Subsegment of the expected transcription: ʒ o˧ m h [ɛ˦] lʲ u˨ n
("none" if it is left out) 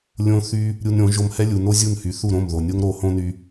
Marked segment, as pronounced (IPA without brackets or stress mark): ɛ˦